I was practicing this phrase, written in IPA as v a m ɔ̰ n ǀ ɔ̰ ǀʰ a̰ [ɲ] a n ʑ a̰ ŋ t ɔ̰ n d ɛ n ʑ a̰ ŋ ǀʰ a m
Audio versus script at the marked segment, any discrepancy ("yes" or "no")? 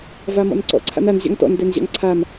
yes